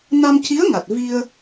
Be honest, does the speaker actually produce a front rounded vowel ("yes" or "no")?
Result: no